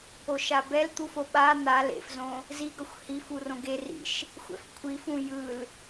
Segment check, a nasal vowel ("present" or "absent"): present